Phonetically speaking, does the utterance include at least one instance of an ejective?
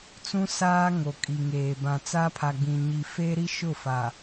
yes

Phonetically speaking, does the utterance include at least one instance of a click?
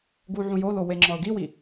yes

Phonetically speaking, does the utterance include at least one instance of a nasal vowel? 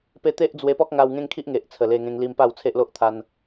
yes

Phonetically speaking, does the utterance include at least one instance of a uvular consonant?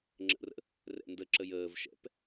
no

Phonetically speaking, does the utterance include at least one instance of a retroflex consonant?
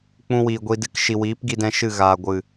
no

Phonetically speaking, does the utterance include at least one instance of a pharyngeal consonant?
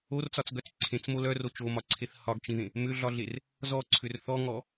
no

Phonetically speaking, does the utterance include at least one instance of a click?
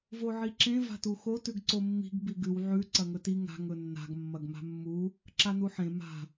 yes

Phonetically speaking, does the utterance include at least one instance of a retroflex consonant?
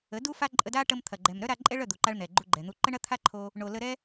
yes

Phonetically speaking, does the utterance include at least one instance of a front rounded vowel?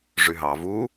yes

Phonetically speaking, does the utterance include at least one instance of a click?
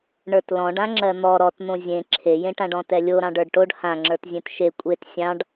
yes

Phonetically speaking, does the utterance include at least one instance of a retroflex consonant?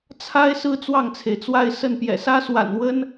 no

